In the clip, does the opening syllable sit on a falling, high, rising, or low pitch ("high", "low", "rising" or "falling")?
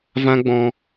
high